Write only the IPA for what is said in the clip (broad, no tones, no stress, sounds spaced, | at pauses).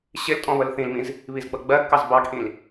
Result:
ɕ ɪ l tʼ ɔ̃ β ə l θ ĩ l m ĩ z | β i z ɡ͡b ʌ ɡ͡b ɜ ɡ k ɑ z b ɑ ɡ ʔ ĩ l